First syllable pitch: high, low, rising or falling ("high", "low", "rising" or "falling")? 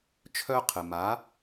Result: high